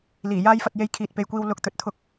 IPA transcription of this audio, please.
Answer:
l iː˨˩ j aː˥ j f ɐ˧ t̚ j e˧ j kʰ iː˨ t̚ p e˨ j kʷ iː˧ w l ʊ˧ k̚ t̪ ɵ˨ t̚ t̪ʰ ʊ˨˥ k̚

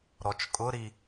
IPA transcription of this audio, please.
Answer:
ɾ ɔ t͡ʃ kʼ ʊ ɾ i

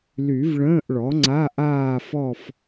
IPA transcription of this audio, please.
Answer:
l y˨˩˦ v ɭ ə̃ː˧˥˧ ʔ ɭ ɔ˩˥ ŋ͡ǀ a˧˥˧ ʔ aː˥˧ f ɔ˥˧ f

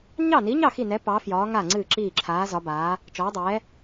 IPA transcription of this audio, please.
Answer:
ɲ ɑ˥˩ n i˨˥ ɲ ɑ˥˩ x i˥˩ n ɛ˨˥ p ɑ˨˥ f j ɒː˨˥ ŋ a˥˩ ŋ͡ǀ ɨː˥˩ ǁ iː˥˩ ǁʰ aː˨˥ z ɒ˨˥ b aː˨˥ | t͡ʃ ɒː˨˥ dˤ ɛː˨˥

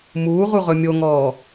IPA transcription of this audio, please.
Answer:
m uː ʁ u ʁ ɵ mʲ o ŋ ɔː

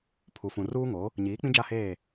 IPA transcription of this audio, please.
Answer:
pʰ u˨ f ũ˨ r uː˦ ŋ o˨˦ | ɲ iː˨˦ k͡p ĩ˦ d͡ʒ a˦˨ h eː˦˨

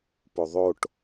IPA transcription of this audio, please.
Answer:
p o ðˤ o ʈ

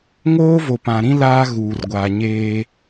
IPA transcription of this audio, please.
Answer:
ŋ oː˦ v o˨ p ã˨ ɾ ĩ˦ l aː˦ ɣ uː˨ r ɡʷ aː˨ ɲ eː˦

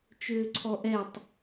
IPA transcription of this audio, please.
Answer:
t͡ʃ ʏː ǀʰ ɔ ʔ ɛ tˤ

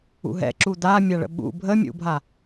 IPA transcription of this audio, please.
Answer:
ṵ ɦ ɛ̰ ǁ u d̪ a mʲ a ɭ ə̰ ɓ ṵ bʱ ə mʲ ṵ bʱ a

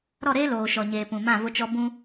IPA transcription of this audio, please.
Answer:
ɾ ɔ˦˨ ɾ eː˦ l oː˨ ʃ ɔ˨ ɲ eː˨ p ũ˨ m ã˦˨ v ʊ˦ t͡ʃ ɔ˦ b ũ˦

